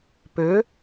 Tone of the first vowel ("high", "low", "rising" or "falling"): rising